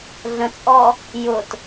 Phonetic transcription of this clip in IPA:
ɮ ə̃ t͡sʼ ɔ | j ʊ t

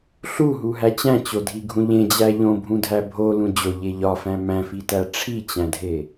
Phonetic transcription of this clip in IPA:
ɬ u ɦ u ɦ æ t͡ɕ æ̃ t͡ɕ o dʱ i ɡʱ ũ ʎ ẽ d͡ʑ æ ʎ õ bʱ ũ dʱ æ bʱ o l ũ d͡ʑ o ʎ e ʎ ɒ f æ̃ m æ̃ f i t æ ʈ͡ʂʰ i t͡ɕ æ̃ dʱ e

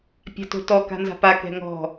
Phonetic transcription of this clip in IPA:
pʲ a̤ t o̤ t ɔ k a̤ n z a̤ p a k ɛ̤ ŋ ɔ̤

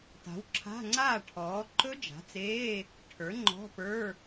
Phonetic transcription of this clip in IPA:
t a̤˩˥ w ǁʰ a̤˧˥˧ ŋ͡ǀ aː˥˩ ʈʰ ɔː˩˥ ǃ ɵ˦˥ d͡ʒ a̤˩˥ t͡s eː˧˥˧ | ʈʰ ə˞˩˥ ŋ͡ǃ ɔ̤˧˥˧ p ə˞˧˥˧

